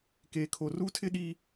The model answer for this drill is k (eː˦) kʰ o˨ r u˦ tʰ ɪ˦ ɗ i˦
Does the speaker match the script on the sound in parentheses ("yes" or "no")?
no